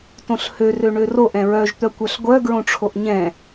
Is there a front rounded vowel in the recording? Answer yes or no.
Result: yes